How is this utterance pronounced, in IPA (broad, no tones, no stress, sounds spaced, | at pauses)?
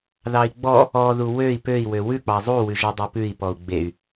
ð ɑ i̯ ɡ͡b ɔ | ɔ ð u w ø i̯ p ø i̯ w ø w ʉ k͡p ɑ zˤ u w ʉ ʒ ɔ dˤ e p ʉ i̯ p ɔ u̯ ɡ͡b e y̯